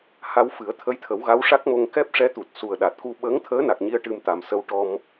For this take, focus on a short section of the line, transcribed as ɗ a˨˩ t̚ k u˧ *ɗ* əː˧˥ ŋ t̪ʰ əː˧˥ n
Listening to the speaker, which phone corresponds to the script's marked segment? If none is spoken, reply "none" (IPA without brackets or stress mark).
ɓ